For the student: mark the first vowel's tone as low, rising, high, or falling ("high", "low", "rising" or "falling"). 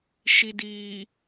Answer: low